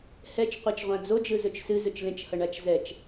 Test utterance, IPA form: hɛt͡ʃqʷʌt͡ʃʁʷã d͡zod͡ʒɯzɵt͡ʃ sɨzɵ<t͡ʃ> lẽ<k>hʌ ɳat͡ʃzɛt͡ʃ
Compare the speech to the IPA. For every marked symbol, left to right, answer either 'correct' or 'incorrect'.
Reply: correct, incorrect: t͡ʃ

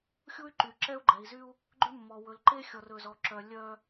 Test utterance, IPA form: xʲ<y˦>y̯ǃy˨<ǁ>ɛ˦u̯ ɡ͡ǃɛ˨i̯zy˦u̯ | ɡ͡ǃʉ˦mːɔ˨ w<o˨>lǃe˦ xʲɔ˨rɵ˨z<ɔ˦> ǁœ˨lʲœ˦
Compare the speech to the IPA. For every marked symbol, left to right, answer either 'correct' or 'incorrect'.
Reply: incorrect: u˦, correct, incorrect: ɵ˨, incorrect: ɔ˨

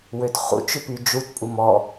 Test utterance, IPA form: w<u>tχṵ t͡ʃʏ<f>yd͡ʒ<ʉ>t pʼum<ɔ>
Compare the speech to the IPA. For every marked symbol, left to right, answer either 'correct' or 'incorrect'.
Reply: incorrect: ø, incorrect: p, incorrect: u, correct

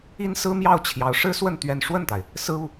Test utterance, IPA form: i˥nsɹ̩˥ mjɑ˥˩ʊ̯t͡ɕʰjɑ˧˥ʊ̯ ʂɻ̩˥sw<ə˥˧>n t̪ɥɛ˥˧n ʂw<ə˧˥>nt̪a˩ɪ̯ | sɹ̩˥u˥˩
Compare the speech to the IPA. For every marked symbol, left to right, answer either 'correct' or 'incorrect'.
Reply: correct, incorrect: ə˥˩

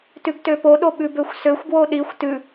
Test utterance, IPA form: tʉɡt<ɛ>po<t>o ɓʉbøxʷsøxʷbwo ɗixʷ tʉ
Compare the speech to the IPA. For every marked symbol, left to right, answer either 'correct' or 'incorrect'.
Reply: incorrect: ø, incorrect: ɗ

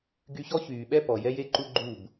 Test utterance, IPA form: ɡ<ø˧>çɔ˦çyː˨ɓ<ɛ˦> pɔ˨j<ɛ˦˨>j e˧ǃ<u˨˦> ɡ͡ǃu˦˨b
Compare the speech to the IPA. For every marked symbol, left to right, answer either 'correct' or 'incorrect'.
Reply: incorrect: y˧, correct, incorrect: ɛ˦, incorrect: u˧

